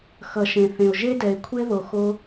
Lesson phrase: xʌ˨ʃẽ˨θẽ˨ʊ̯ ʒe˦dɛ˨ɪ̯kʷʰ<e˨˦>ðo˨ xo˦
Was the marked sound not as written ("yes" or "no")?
yes